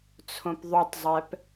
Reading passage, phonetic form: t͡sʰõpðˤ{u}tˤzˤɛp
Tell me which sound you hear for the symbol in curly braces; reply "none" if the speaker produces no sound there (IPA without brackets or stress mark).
u